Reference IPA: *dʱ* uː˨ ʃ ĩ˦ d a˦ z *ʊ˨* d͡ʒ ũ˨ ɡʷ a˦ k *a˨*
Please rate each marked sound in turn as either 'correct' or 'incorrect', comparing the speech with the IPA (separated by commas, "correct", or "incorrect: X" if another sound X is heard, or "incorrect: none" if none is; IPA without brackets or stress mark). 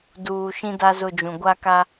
incorrect: d, incorrect: ʊ˦˨, incorrect: a˦